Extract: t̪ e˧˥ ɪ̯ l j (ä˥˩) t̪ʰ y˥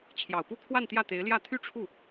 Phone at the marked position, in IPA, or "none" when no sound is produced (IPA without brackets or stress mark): ä˥˩